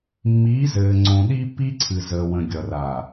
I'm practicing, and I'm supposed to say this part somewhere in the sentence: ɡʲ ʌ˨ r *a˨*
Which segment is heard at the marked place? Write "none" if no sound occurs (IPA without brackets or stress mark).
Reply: a˨